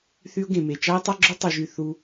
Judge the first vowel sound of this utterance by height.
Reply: high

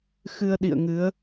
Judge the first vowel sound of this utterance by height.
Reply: high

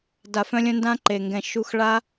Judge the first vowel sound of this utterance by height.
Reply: low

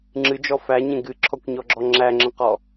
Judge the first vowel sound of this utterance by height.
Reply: high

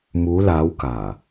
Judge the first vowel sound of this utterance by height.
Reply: high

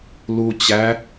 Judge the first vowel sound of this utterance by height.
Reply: high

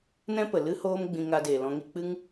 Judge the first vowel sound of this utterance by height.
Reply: mid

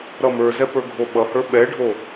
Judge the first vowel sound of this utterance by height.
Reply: mid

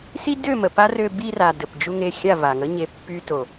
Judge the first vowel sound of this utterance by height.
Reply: high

